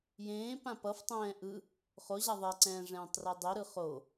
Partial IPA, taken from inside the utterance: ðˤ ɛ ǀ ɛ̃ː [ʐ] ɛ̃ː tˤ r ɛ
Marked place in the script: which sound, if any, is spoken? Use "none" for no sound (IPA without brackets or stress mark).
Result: ʐ